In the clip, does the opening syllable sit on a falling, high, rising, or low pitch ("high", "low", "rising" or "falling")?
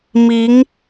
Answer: rising